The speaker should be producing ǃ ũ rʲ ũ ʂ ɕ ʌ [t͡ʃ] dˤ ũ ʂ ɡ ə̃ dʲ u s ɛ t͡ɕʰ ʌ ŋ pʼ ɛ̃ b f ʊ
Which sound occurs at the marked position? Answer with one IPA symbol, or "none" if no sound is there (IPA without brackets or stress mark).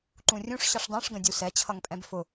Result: ʂ